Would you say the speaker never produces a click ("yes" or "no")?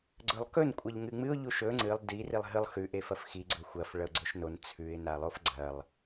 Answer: no